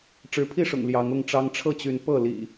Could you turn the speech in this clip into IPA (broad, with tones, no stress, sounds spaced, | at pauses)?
ʈ͡ʂ ɻ̩˨˦ pʰ i˥˨ ʂ ʊ̰˨˩ ŋ l j ɑ˨˦ ŋ ʊ˥˨ ŋ ʈ͡ʂ ɑ˦ ŋ ʈ͡ʂʰ ɤ˥˨ t͡ɕ y˨˦ n p ɤ˥˨ l ḭ˨˩